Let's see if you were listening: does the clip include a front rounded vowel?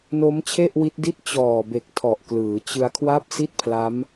no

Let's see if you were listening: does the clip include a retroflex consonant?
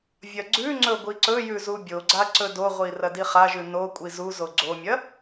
no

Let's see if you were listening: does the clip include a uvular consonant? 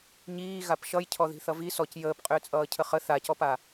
yes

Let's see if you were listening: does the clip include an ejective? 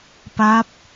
no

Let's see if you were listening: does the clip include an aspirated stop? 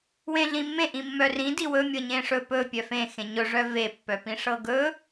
no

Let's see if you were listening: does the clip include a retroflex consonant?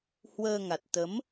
no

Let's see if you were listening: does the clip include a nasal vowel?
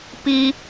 no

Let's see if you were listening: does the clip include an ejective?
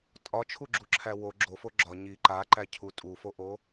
yes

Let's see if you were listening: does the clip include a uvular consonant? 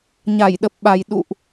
no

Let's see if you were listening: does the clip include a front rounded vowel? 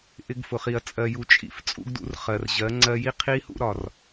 no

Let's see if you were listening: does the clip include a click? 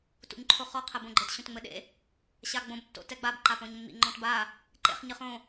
yes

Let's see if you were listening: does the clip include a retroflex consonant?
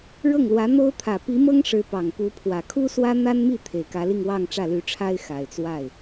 yes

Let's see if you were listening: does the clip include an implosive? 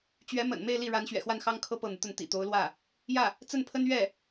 no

